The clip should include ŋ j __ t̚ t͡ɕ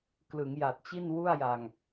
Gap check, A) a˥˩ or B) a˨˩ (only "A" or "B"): B